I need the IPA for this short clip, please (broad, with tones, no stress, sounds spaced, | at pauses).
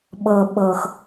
ɓ ɤ˨ ɓ ɤ˨ x